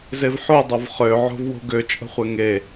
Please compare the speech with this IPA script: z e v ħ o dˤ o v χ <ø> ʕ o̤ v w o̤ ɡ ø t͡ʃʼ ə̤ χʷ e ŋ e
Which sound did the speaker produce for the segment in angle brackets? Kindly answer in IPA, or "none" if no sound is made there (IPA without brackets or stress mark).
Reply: ø